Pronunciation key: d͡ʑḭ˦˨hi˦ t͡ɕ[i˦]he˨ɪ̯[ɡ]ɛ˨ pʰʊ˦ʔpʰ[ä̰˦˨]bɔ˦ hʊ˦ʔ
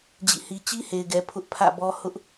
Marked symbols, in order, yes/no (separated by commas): yes, yes, yes